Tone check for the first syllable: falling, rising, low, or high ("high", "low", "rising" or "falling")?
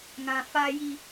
low